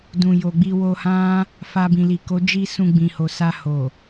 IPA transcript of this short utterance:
d ũ˨ j o˨ ɡ͡b i˧ w o˧ h ã˦ | f a˧ b ĩ˨ l i˨ k o˨˦ d͡ʒ i˧ s ũ˧ ɡ͡b ĩ˨ h o˨ s a˧ h o˨

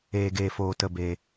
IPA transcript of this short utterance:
eː˧ ɡ eː˧ f oː˧ t ə˧ b eː˧

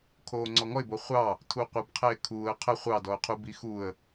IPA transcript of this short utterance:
kʰ oː ŋ͡ǀ ɔ ŋ ɔ ɪ̯ b o χʷ ɑ | tʰ u qʷ ə b qʰ ɛ ɪ̯ kʰ uː ə̯ qʰ ə χʷ ɑ d ɔ ʊ̯ qʰ u b i x u ə̯

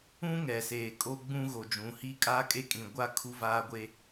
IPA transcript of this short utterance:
ũ˦ ŋ ɛ˨ s eː˨ kʼ o˦ ɡ͡b ũ˦ ɣ o˨ d͡ʒ ũ˨˦ h i˦ kʼ aː˦ kʼ e˦ kʼ ĩ˨ ɡʷ a˦ kʰ u˦ v aː˦ ɡʷ e˦

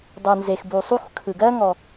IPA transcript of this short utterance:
dˤ ɯ˩ n z e˩ x b u˩ sˤ u˥ x kʰ ɯ˩ ɡ ɜ˥ ŋ ɔ˩

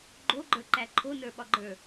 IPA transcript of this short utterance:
ɡ͡ǃ o ɡ͡ǃ ə˞ ǃ æ ǃʰ o n ə˞ ɓ ɒ ɡ͡ǃ ə˞

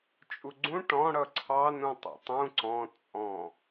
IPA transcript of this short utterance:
t͡ʃʼ u ɡ͡ǀ ũ ʈ ɔ̃ ɽ ʌ ǀʰ ɑ n ũ tˤ ṵ tˤ ũ ǀ ɔ̃ t͡sʼ ɔ̃

